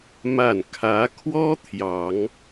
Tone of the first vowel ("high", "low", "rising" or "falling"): falling